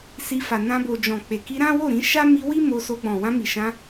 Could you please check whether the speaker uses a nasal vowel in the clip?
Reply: yes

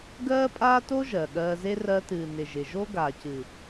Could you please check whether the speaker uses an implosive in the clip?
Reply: yes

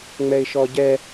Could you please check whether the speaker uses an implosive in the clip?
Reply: no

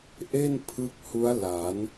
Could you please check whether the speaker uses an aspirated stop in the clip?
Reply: yes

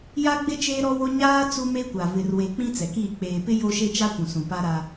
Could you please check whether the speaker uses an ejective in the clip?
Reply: no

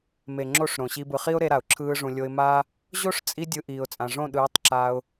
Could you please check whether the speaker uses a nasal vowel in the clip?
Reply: yes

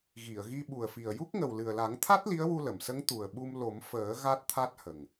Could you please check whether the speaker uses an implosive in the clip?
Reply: yes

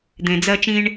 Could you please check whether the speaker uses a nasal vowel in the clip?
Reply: yes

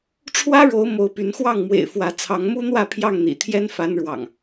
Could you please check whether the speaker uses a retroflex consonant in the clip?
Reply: yes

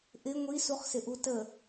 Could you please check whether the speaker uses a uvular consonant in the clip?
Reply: yes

